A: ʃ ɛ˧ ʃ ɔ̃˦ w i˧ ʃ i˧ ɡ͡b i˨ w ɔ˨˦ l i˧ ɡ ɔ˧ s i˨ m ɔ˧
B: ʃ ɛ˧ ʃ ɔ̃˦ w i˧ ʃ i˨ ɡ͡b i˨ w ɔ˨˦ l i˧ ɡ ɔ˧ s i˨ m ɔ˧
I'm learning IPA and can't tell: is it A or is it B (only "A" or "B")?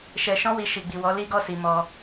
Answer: B